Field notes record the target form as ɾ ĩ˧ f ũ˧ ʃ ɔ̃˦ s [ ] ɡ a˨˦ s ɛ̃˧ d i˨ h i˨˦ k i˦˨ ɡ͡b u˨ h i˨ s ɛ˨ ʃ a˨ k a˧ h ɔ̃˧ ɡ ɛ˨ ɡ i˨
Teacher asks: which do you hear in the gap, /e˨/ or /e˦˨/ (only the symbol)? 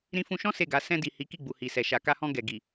e˦˨